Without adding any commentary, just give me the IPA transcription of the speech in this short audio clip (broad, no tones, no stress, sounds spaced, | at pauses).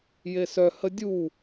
j e s œ h ə dʲ u